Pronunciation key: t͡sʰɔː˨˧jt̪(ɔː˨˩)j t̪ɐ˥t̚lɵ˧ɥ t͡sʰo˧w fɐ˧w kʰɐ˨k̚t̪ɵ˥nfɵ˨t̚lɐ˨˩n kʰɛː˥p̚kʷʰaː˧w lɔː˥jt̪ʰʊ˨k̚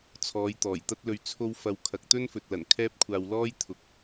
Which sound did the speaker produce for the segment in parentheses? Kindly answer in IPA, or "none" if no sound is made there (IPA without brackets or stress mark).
ɔː˨˩